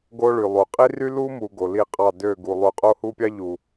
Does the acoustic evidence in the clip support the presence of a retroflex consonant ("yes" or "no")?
yes